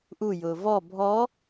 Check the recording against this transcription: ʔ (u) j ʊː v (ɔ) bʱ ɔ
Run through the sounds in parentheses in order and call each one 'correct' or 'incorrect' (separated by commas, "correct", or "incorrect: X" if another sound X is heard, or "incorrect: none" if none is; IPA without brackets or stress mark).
correct, correct